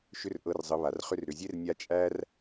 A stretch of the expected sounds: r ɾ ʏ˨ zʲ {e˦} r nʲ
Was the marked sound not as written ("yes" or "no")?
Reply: no